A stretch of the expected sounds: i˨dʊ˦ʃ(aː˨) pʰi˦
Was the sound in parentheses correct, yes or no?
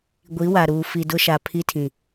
no